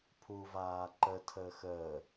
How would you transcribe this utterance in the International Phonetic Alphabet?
pʰ u v aː ǃ ə tʰ əː x əː

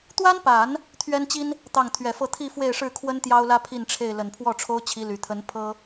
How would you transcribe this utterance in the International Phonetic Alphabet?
t̪ w a˥ n p a˨˩˦ n | t̪ʰ ɥ ɛ˥ n t͡ɕ i˥ n | t̪ ɑ˥˩ ŋ t̪ʰ ɥ ɛ˨˩ f ɤ˥˧ t̪ʰ i˥˧ f w e˥˧ ɪ̯ ʂ ɻ̩˥˩ kʰ w ə˥ n t̪ j ɑ˥ ʊ̯ l ä˥ pʰ i˥˧ n ʈ͡ʂʰ e˥˩ ɪ̯ l ə˨˩ n pʰ w ɔ˥˩ ʈ͡ʂʰ o˥ ʊ̯ t͡ɕʰ i˧˥ l y˨˩ t̪ʰ ə˧˥ n pʰ ɤ˥

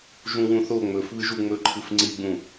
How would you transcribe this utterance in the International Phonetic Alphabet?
ʒ ũ w ũ θ o ŋ͡m ɵ f β ɨ ʒ u ŋ͡m ɵ ǃʰ ɨ f ŋ͡ǀ i ɡ͡b ũ

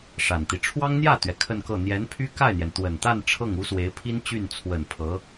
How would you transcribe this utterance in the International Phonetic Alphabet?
ʂ a˨˩ n t̪ i˦ ʈ͡ʂʰ w ɑ˥ ŋ n̪ j ä˥˩ t̪ ɥ ɛ˩ kʰ ə˥˧ n k ɤ˥˩ n̪ j ɛ˧˥ n pʰ y˥ k a˥˩ ɪ̯ n̪ j ɛ˩ n t̪ w ə˨˩ n t̪ a˥˧ n ʈ͡ʂʰ ɤ˥˩ ŋ u˥ s w e˧˥ ɪ̯ pʰ i˥ n t͡ɕ y˥˩ n t͡sʰ w ə˨˩ n pʰ ɤ˧˥

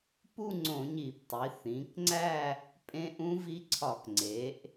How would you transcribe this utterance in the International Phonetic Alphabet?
p u˥˧ ŋ͡ǀ õ˧˩˧ ɲ i˧˩˧ p tˤ i˩˧ θ ĩ˩˧ k ŋ͡ǀ æ˥˧ | pʼ ẽ˦˥ ʔ ũ˦˥ v i˦˥ ǀʰ ɒ˧˩˧ k ŋ͡ǀ e˩˧ ʔ

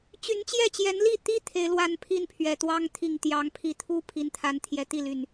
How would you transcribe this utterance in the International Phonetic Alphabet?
t͡ɕ y˨˦ n t͡ɕ j ɛ˥˨ t͡ɕ j ɛ˨˦ n l i˥˨ t̪ i˦ t̪ʰ e˨˦ ɪ̯ l w a˥˨ n pʰ i˥˨ n pʰ ɥ ɛ˨˩ t̪ w ɑ˦ ŋ t̪ʰ i˨˩ ŋ t̪ j ɑ˨˦ ŋ pʰ i˨˦ t̪ʰ u˦ pʰ i˨˦ n t̪ʰ a˨˦ n t̪ʰ j ɛ˨˩ t̪ i˥˨ l y˨˩ n

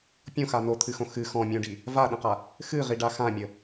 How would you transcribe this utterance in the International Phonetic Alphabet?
pʲ õ x a n o t̪ʰ ɨ x õ x ɨ x ɔ̃ mʲ ũ ɖ i | v a ɗ ə̃ q a | x ɨ ʁ i ɖ a x ã mʲ ə

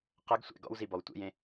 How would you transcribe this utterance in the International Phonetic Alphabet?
q ɐ ɡ sʷ ɛ̰ ɡ ɔ̰ w z i b ɔ w tʷ ḛ j ẽ

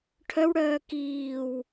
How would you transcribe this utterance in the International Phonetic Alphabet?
ʈʰ œ w ɽ œː k iː w

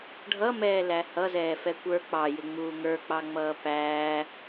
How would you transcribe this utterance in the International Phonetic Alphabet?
ɖʱ ʌ m ɛː l æ h ʌ z ɛː f ɛ kʷ ə˞ k͡p ɑ j ɪ ŋ͡m uː ŋ ə˞ k͡p ɑ ŋ͡m ʌː p æː

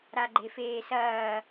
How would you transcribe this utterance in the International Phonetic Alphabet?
ɾ a ɡ͡ǃ e f eː s ɐː

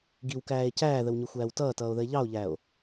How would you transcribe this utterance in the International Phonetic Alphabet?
ɡ i w k æː e̯ c æː ð ə w ɲ ʊ xʷ æː w t ʌː t ʌː o̯ ð ə e̯ ʎ ɑ o̯ ʎ æ o̯

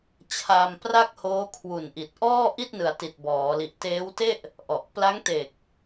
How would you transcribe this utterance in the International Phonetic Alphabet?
t͡ɕʰ a˧ m p r a˥˩ k̚ h oː˦˥ kʰ w u˨˩ n ʔ i˨˩ t̚ ʔ ɔː˥˩ ʔ i˥˩ t̚ n ɯ˩˦ a̯ t i˨˩ t̚ b ɔː˩˦ l i˨˩ ʔ t eː˦˥ w t e˥˩ ʔ | ʔ ɔ˨˩ ʔ p l a˦˥ ŋ t e˨˩ k̚

